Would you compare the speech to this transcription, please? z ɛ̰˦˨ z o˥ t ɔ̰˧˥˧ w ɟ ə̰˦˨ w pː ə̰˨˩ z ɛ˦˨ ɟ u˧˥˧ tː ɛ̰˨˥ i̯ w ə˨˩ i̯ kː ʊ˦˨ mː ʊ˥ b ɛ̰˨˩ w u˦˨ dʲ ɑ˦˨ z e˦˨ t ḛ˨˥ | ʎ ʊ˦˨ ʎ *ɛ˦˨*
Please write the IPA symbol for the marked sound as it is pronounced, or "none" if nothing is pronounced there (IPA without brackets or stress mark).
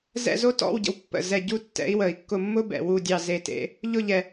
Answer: ɛ˨˩